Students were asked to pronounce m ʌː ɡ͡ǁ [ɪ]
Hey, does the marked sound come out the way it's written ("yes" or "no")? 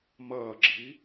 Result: no